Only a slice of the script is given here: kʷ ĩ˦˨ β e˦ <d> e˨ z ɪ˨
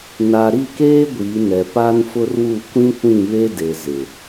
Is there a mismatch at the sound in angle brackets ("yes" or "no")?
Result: no